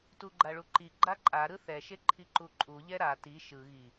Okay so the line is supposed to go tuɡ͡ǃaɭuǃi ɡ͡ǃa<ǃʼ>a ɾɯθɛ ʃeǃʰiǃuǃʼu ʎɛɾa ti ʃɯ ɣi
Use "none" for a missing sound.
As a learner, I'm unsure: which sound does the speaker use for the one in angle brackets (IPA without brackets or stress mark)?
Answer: ǃʼ